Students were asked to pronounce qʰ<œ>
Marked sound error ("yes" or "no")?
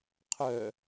no